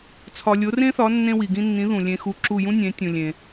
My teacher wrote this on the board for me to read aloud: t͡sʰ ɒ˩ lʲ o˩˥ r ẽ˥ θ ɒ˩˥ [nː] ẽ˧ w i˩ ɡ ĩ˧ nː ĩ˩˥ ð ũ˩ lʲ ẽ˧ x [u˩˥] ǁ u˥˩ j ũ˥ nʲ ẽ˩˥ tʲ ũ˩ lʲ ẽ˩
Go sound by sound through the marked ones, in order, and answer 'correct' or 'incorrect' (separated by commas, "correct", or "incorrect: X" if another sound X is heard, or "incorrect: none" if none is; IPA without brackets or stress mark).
correct, incorrect: u˧